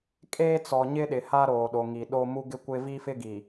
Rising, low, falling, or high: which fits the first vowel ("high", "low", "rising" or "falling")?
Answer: high